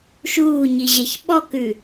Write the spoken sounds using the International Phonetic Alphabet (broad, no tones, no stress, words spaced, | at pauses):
ʃuːɲiʑɛç ɓɔkʉ